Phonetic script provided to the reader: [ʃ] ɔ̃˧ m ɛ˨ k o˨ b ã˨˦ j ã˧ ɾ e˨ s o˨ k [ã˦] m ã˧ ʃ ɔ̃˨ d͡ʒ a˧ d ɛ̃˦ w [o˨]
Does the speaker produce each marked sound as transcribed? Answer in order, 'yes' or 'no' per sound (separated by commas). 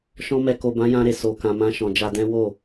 yes, no, no